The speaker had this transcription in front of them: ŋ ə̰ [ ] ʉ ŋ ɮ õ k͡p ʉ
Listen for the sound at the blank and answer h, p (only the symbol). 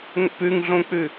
p